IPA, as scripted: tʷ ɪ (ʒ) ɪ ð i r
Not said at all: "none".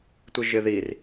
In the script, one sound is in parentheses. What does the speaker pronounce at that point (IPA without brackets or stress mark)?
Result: ʒ